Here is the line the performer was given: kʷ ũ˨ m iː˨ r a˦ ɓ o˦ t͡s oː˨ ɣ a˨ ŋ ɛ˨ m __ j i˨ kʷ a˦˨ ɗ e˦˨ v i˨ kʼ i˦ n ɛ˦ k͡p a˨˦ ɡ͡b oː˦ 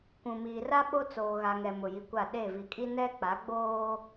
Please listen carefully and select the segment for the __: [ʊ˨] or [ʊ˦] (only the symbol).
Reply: ʊ˨